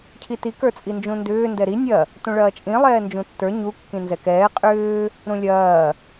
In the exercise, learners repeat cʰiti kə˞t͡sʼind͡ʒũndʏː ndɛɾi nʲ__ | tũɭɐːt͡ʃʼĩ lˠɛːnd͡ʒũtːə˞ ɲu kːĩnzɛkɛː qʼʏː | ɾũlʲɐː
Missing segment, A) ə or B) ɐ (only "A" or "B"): B